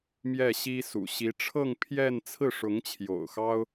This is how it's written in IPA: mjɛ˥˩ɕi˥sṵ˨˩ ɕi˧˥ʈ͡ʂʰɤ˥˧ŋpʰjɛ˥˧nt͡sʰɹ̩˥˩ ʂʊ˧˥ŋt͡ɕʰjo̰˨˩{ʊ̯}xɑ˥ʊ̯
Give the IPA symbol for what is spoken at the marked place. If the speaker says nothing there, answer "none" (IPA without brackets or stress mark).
ʊ̯